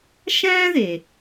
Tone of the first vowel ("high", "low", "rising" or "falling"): high